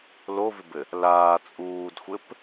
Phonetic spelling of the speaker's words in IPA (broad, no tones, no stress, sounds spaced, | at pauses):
l o v ɪ b ɘ | l aː t͡sʼ uː d xʷ ɘ p